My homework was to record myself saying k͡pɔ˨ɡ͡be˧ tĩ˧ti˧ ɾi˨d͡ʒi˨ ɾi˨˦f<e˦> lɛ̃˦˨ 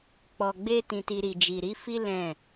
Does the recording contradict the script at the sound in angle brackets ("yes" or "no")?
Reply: yes